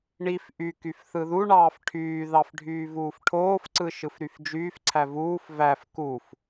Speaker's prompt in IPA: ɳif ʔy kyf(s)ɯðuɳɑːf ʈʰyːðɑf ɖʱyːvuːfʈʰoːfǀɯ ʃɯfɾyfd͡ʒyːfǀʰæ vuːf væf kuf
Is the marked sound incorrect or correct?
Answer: incorrect